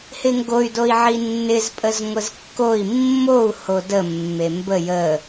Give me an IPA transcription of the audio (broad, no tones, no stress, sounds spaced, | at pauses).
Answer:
h ɪ ŋ ɡ o y̯ d o i̯ ʕ i nː ɪ z pʼ ə z ŋʷ ə z kː o i̯ mː o u̯ h o d ə mː e m b ə j ə